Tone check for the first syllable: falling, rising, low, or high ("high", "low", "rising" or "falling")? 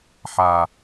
low